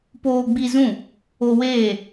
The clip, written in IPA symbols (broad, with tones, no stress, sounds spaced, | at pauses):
p oː˧ ɡ͡b i˧ z ũ˦˨ | o˧ w eː˦˨